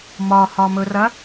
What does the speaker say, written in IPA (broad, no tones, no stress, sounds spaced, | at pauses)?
m ɒ h ɒ m ɵ r ɐ